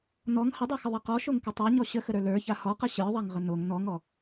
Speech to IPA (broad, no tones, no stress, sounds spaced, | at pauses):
n ɔ ŋ h ə dˤ ə˞ x ə ðˤ ɛ q ɔ ʃ o ŋ k ə tˤ a ɲ ɔ ɕ ə x ə ɾ ə˞ l ə˞ ç a h ɔ q ə ɕ ə˞ ðˤ a ŋ ʁ ə n o ŋ n ɔ ŋ ɔ